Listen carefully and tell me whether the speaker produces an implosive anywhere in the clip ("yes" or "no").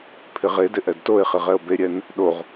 yes